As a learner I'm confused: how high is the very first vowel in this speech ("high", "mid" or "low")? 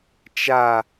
low